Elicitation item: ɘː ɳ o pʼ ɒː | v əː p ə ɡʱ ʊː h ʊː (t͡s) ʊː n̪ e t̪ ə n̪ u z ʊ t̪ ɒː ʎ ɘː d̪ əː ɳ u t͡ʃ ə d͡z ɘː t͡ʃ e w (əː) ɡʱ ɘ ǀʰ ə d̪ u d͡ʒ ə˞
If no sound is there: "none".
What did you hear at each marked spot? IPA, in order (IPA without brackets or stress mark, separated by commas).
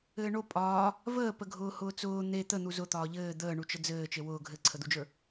t͡s, ʊː